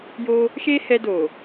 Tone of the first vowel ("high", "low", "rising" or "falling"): high